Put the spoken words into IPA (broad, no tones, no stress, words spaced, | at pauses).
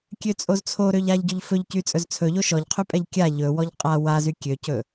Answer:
kʲøt͡sʼozt͡sʰo ɾøʎaʎɟɵʎfɵʎ cyt͡sʼɵzt͡sʰɵ ʎoʃɔʎqʰypʼɛʎ kʲa ʎɵ wɔʎqʼa wazy kʲøcɵ